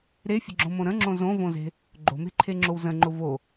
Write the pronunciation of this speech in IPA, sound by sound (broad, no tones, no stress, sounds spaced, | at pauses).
ɾ e fʲ ə̤ ɡ͡ǁ õ m õ ɾ ə̃ ŋ͡ǁ õ z õ v õ z e̤ | ɡ͡ǃ o̤ m e̤ ǃʰ e ŋ͡ǁ o w z ə̃ ŋ͡ǃ ʊ v o